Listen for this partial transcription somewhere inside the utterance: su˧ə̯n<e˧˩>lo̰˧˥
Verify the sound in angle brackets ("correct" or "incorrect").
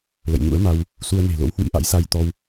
incorrect